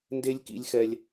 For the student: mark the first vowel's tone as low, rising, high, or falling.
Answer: high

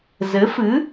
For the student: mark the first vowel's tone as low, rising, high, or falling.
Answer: rising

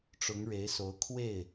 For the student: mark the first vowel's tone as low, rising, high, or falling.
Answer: rising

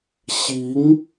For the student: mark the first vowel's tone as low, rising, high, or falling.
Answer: rising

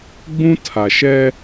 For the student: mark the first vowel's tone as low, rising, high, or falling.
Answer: high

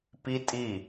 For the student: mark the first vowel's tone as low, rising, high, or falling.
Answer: high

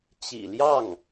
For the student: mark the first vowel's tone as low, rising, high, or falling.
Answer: low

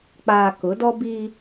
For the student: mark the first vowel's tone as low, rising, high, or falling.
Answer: low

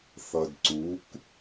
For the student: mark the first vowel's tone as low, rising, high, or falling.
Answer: low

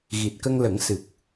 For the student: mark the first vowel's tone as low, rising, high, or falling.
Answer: low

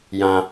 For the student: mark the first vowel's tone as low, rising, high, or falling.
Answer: high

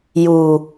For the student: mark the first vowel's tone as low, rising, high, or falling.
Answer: low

